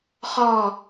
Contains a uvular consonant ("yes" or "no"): yes